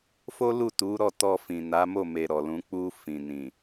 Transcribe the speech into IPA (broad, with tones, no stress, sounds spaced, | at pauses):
f o˦ l u˦˨ t u˨˦ ɾ ɔ˦˨ t ɔ˧ f ĩ˨ n a˨˦ m o˦˨ m e˧ ɾ ɔ˨ l ũ˨˦ k͡p u˧ f ĩ˨ n ĩ˨